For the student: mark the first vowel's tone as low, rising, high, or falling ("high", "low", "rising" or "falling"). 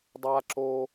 high